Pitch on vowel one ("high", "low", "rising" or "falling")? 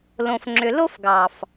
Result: low